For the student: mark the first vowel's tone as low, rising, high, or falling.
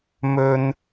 high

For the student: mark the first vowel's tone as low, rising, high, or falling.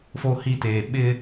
high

